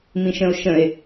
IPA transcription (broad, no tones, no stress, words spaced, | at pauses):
mĩʃə̃o̯ʃə̃e̯